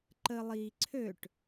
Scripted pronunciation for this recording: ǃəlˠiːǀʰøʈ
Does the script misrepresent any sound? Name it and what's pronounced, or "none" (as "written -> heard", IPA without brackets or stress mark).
none